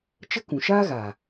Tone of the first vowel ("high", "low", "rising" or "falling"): high